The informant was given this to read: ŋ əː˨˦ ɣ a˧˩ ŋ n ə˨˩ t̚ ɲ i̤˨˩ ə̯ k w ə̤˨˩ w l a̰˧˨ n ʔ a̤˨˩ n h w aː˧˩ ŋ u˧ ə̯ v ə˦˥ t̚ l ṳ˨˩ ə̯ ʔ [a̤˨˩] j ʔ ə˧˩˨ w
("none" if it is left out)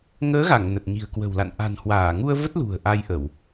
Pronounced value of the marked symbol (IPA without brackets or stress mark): a˧